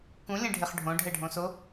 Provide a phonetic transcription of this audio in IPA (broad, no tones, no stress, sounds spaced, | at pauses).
k ũ lʲ ẽ ɖʱ e χ ɖʱ õ ɖʱ ɛ ɖʱ õ s o